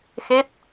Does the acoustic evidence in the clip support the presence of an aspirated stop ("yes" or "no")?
no